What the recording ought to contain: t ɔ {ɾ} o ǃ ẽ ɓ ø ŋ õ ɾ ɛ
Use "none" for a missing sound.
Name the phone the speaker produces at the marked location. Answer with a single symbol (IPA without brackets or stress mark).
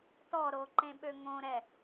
ɾ